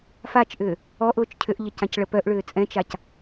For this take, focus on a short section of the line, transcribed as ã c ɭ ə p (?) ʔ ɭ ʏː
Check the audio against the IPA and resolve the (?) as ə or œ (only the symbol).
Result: œ